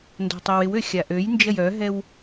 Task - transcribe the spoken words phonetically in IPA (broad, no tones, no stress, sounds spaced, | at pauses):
n d ɔ̤ tˤ ɛ w ɪ w ø xʲ a ʔ ø j n d͡ʒ ɐ j œ ɦ ɛ w